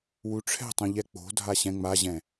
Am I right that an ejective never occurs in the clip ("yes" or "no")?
yes